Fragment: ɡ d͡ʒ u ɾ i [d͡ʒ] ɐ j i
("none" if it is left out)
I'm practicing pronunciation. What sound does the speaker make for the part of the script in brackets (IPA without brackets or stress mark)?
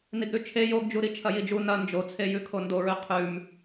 t͡ʃʰ